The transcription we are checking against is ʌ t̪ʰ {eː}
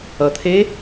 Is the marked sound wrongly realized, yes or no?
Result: no